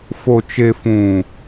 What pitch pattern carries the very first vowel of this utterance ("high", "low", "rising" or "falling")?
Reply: low